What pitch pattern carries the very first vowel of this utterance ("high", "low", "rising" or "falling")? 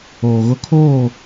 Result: low